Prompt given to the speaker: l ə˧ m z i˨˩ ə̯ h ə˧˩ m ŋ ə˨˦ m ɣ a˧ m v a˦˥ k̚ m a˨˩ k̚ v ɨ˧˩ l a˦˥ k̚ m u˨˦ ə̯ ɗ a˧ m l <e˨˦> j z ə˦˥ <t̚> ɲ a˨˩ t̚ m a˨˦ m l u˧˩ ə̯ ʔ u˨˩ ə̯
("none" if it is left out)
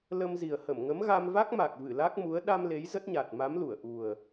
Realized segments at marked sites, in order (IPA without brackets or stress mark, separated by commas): e˨˦, t̚